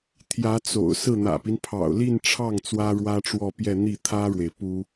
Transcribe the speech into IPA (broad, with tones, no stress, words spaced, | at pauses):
t̪ʰjä˧˥t͡so̰˨˩ʊ̯ sɹ̩˥˩n̪ä̰˨˩pi˦n pʰɑ̰˨˩ʊ̯li˥˧nʈ͡ʂʰɑ˥˩ŋ t͡swä˥ɻwä˥ʈ͡ʂwɔ˥˧pjɛ˥˧ n̪i˥˩t̪ʰä˥ɻwe˨ɪ̯ pu˥